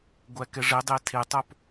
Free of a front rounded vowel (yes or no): yes